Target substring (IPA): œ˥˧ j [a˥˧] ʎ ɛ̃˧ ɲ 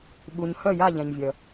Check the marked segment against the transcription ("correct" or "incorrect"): correct